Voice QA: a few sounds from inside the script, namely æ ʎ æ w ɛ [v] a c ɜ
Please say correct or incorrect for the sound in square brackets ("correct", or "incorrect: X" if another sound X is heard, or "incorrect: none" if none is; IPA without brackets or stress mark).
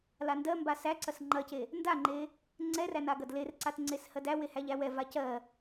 correct